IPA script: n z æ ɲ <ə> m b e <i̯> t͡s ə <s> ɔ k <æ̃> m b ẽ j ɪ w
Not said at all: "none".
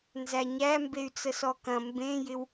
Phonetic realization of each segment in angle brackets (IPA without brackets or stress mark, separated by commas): æ, y̯, s, ɐ̃